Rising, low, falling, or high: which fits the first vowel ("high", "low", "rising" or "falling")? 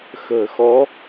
low